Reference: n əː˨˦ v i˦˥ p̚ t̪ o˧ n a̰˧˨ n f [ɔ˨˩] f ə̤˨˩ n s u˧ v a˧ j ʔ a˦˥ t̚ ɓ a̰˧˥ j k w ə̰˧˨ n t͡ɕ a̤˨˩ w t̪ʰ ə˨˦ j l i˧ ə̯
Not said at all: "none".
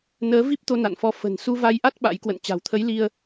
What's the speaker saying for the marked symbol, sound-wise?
ɔ˧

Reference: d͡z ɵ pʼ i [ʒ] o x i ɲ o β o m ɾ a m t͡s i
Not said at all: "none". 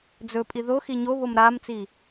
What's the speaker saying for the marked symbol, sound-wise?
ð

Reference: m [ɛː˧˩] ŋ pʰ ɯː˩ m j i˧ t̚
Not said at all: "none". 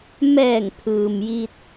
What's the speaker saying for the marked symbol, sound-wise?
ɛː˧˩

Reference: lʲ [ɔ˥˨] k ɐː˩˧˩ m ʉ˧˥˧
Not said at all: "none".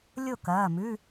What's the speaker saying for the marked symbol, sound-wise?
o˥˨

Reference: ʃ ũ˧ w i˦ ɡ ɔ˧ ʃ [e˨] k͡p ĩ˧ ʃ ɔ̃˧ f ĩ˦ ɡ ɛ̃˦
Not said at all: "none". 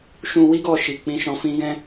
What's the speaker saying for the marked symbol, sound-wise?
i˨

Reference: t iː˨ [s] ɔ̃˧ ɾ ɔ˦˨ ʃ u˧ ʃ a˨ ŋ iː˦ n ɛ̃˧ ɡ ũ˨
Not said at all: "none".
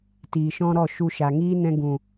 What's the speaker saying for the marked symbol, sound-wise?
ʃ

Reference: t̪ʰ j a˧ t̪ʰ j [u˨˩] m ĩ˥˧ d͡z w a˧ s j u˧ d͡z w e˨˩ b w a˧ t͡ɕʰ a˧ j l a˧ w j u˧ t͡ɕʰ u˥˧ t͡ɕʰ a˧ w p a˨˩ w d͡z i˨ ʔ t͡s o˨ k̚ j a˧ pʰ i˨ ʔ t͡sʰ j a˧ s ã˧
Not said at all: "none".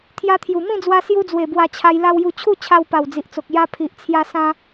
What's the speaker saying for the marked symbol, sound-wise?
u˨˩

